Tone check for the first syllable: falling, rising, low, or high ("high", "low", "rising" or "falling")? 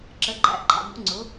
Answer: rising